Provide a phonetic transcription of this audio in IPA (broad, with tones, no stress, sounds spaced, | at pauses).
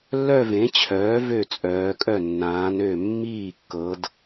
lː œ˥˧ v ẽ˩˥ t͡ɕʰ œː˩˥ v ø˥˩ t͡sʼ œː˩˧ kʼ œ˥˩ nː ãː˩˧ n ø˧˩ mː iː˥˩ kː ɤ˩˧ d